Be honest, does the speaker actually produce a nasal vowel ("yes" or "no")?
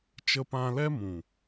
yes